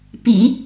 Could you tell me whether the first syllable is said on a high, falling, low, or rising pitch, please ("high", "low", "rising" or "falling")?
low